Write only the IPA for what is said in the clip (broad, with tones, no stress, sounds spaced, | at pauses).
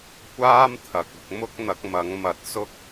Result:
kʷ aː˥ m t̪ʰ ɐ˨ k̚ ʊ˧ k̚ m ʊ˥ k̚ n̪ ɐ˨˥ k̚ m ɐ˨˥ ŋ m ɐ˨˥ t̚ s ʊ˥ k̚